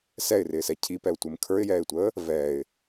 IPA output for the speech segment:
s ɛ ɪ̯ r ɪː s ɛ cʰ i p ɛ ʊ̯ tʷ ɪ m kʰ ə˞ ɪ̯ j ɛː ɪ̯ tʷ əː | v ɛː ɪ̯

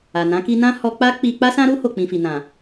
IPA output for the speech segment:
a˨ n ã˨˦ k i˧ n ã˦ h ɔ˧ k͡p a˦ k͡p i˧ k͡p a˦ s ã˦ ɾ u˦ h o˦˨ k͡p ĩ˧ f i˨ n ã˨

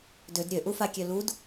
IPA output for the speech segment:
d ø d ɾʲ ø ʔ u f a kʲ ø l u d

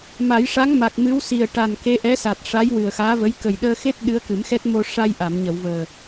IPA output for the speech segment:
m a˨˩˦ j ʂ a˧˥ ŋ m a˨˩ k̚ m ɨ˧˥ w s i˨˩ ə̯ ʈ a˨˩ n k e˧˥ ʔ ɛ˧˥ s a˨˩ t̚ ʂ a˧˥ j w ɨ˨˩ ə̯ x aː˧˥ v ə˧˥ j k ə˨˩ j ɗ əː˧ x e˦˥ t̚ ɗ ɨ˧˥ ə̯ k ɨ˨˩˦ m x ɛ˦˥ t̚ m o˧ ʂ a˧ j ʔ a˨˩˨ m ɲ ə˨˩˨ w v əː˨˩

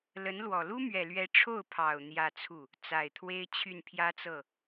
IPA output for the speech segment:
l ə˧˥ n l w ɔ˨˩ l u˥ m ɥ ɛ˨˩ l ɥ ɛ˧˥ ʈ͡ʂʰ o˥˩ ʊ̯ pʰ ɑ˨˩ ʊ̯ n̪ j ä˥˧ t͡sʰ u˥˩ | t͡s a˨˩ ɪ̯ t̪ʰ w e˥ ɪ̯ t͡ɕʰ y˥˩ n pʰ j ä˥ t͡s ɤ˥˩

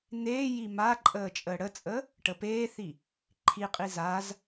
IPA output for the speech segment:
n̪ eː j i m a ǃʼ əː t͡ʃʼ əː ɽ ə t͡sʼ əː | ʈ ə p eː θ i | ǃʰ i qʼ i z a z

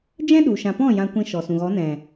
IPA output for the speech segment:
d͡ʒ ɛ̃˦ ɗ u˨ ʃ ã˨ p ɔ̃˦˨ j ã˧ kʷ ĩ˧ ʃ ɔ˨ s ũ˨ ɣ ɔ˨˦ n ɛ̃˨

